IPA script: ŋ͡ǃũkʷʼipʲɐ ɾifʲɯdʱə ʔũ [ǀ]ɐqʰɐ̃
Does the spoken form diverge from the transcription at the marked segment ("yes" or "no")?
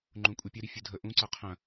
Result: no